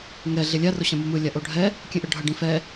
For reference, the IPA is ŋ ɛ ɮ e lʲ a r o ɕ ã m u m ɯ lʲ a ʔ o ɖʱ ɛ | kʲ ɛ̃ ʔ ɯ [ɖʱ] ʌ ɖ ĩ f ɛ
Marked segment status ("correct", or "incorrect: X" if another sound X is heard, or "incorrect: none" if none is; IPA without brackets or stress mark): correct